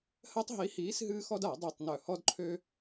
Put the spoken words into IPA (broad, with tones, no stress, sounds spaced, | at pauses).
h ɜ˦ tˤ ɦ i˨˥ h iː˨˥ s ɦ ɨː˦ x ɔ˦ d a˧˩˧ dˤ i˨˩ tˤ n œ˨˩ h ɔ˦ d ǃʰ øː˦